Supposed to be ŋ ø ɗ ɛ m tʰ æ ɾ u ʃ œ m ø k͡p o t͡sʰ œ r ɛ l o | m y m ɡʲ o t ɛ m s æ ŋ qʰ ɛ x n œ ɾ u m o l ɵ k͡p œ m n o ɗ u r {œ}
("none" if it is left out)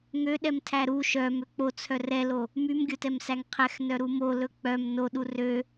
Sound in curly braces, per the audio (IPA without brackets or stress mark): ø